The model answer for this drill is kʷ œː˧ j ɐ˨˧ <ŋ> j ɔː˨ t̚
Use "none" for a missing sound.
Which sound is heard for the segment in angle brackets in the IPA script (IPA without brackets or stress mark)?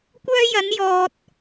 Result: n